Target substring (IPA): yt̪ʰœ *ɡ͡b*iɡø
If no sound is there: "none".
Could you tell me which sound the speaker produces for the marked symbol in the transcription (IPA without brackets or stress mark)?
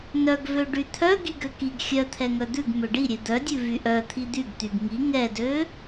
ɡ